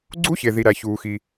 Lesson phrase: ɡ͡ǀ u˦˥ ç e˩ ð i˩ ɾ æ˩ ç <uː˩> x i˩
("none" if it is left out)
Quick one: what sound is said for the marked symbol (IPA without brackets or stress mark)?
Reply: uː˩